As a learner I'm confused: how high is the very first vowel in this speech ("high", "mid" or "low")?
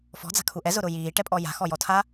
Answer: mid